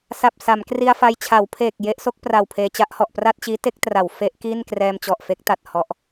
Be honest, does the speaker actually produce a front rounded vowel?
no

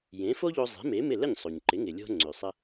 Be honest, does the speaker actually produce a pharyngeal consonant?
no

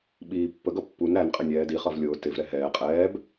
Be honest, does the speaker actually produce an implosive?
yes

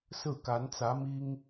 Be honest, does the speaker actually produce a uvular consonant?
no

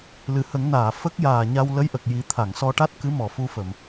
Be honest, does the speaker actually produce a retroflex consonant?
yes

